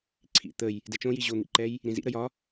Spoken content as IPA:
ǀʰ ḭ t̪ ə j | d ɛ t͡ʃ õ j i ʑ o n̪ ḭ ǃ ɛ j | ɾ ĩ z ḭ ɾ ə j ɒ

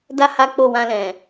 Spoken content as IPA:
d a˧ h a˦ k͡p o˦˨ w ã˧ l ɛ̃˨

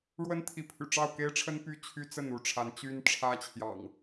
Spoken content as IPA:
ɻ w ə˦ n t̪ʰ i˨˦ pʰ y̰˨˩ ʈ͡ʂ ɑ˥˨ ʊ̯ k e˦ ɪ̯ ʈ͡ʂʰ ə˦ n p y˥˨ t͡ɕʰ y˦ t͡s ə˥˨ n u˥˨ ʈ͡ʂʰ a˨˦ n t͡ɕ y˦ n ʈ͡ʂʰ ä˦ t͡ɕʰ j ɑ̰˨˩ ŋ

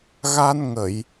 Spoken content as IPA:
ɣ a˧ n ŋ ə˨˩˨ j

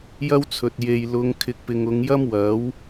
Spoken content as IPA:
j ɐ˥ w t͡sʰ ɵ˨ t̚ j e˧ j l ʊ˧ ŋ kʰ ɪ˧ k̚ p ɪ˨ ŋ ʊ˨˧ ŋ j ɐ˥ m w ɐ˨˥ w

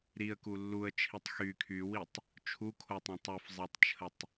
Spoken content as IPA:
ɾ i ə̯ k u lː u ə̯ t͡ʃʰ i tˤ x y kʰ y w i tˤ | t͡ʃʰ u kʰ o tˤ õ tˤ u f zˤ e tˤ t͡ʃʰ ə tˤ

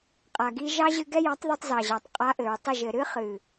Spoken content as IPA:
qʼ a˨ ɡ i˧ ʒ ɑ˦ ʑ ɨ˧ ɡ ɛ˦ j ɑ˨˦ tˤ ð i˧ tˤ z ɑ˨ ʑ ɑ˨ tˤ qʼ a˧ ʔ ɘ˨ ɹ tˤ ə˦˨ ʒ ɘ˨ ɾ ɨ˦ χ ɨ˨

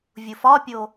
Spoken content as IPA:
vʲ u f ɒ pʲ o

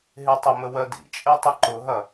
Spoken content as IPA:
ɦ e tˤ ə m ə w ɜ d ḭ t͡ʃʼ e tˤ ə ǃ ʊ ɦ ɐ

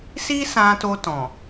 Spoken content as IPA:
s i˦ s ã˧ t o˧ t ɔ̃˨

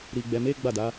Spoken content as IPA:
ɾ i˨ ɡ͡b ɛ˨ m e˨˦ ɡ͡b a˦˨ d a˨˦

